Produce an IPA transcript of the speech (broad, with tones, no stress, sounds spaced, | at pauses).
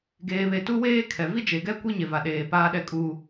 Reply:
ɡ eː˨ β e˨ t u˦ w eː˦ kʰ ɛ˨ v i˦ d͡ʒ e˨ ɡ ɛ˦ kʷ i˦ ɲ e˨ v a˨ ɗ eː˨ p aː˦ ɗ ɛ˦ kʼ uː˦